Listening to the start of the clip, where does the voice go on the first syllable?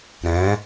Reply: rising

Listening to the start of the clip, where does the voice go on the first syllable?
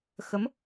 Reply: rising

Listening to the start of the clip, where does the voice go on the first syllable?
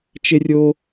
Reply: high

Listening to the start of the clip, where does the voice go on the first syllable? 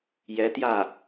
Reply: rising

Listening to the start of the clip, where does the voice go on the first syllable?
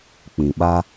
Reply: low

